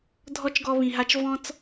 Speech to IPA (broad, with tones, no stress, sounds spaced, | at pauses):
dʱ ɔ˥ t͡ʃ ɡ ɔ˦ β ĩ˨ ɦ a˦ t͡ʃ v ɔ̃˥ t͡s